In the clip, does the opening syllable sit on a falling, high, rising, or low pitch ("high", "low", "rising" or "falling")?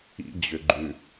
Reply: high